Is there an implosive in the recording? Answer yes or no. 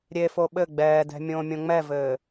yes